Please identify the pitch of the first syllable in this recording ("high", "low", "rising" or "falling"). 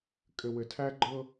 low